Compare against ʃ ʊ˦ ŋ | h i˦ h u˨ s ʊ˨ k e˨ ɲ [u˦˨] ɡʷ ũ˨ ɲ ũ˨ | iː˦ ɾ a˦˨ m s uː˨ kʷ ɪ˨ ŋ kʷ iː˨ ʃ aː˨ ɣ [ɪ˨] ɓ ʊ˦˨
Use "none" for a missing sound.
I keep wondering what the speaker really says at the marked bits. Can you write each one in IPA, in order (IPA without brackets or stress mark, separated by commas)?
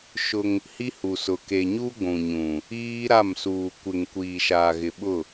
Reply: u˦, ɪ˨